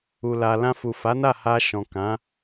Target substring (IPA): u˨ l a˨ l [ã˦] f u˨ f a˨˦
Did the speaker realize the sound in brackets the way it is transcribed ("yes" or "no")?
no